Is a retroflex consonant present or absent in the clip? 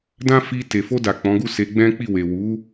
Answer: absent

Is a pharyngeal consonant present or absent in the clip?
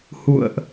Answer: absent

